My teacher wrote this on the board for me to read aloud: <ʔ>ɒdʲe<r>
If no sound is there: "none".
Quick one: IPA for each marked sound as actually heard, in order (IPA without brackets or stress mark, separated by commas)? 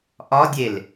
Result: ʔ, l